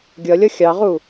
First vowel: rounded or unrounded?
unrounded